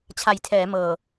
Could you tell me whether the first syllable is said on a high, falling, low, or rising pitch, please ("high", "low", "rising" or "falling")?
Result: low